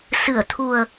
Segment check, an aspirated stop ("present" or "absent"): present